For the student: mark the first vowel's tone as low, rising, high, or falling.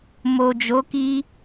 low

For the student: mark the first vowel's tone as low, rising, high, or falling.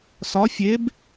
rising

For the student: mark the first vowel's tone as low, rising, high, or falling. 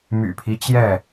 low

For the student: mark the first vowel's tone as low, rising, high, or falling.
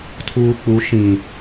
low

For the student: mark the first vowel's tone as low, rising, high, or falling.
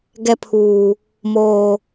high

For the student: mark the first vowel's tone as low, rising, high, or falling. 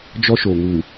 high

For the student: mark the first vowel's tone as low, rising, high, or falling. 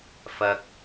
low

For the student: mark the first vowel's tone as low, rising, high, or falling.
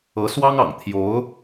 rising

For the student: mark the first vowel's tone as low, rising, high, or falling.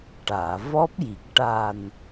low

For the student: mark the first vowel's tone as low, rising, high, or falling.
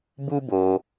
high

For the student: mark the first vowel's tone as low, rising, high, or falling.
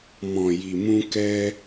low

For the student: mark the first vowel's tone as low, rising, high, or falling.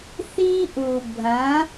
high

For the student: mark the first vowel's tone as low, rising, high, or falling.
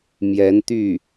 rising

